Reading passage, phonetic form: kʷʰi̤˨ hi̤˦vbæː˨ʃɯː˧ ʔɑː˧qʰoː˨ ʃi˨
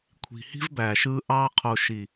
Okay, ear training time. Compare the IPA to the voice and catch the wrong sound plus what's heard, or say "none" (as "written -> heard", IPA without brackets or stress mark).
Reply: none